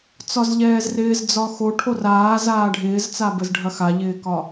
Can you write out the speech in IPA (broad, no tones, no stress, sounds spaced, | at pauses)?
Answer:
t͡s ɒ z ʎ ɛː z r ɪː z d͡z ɒ x o ʈʰ o r aː z aː ɖʱ ɪː z t͡s a b ə z ɖʱ ɐ x a ʎ ɪː k ɒ